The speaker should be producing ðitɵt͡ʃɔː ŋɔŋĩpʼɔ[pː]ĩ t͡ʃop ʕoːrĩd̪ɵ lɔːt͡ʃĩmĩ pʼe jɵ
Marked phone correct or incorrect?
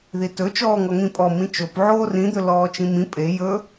incorrect